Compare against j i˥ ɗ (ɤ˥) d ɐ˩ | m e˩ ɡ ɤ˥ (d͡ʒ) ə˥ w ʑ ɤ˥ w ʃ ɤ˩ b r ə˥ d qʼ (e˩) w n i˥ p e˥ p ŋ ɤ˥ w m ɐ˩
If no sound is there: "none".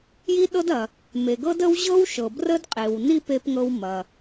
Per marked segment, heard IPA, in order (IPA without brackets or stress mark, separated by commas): ɤ˥, d, e˩